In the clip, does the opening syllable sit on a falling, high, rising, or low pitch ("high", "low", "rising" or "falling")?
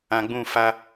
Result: low